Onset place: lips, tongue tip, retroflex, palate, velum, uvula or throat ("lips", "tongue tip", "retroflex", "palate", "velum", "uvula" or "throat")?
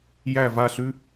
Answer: palate